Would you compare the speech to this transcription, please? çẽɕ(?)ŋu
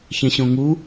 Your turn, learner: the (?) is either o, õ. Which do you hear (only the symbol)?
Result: õ